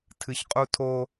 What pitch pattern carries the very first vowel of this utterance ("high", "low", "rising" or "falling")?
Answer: low